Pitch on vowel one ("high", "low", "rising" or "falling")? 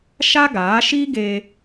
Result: high